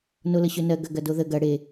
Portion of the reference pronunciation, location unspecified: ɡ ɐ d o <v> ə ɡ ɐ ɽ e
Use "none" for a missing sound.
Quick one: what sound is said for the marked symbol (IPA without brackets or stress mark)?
ð